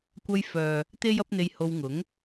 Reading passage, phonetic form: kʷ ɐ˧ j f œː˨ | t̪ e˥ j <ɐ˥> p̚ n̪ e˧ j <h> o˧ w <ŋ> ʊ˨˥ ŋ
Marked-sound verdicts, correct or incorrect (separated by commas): correct, correct, correct